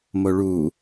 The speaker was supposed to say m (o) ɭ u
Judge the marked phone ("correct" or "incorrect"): correct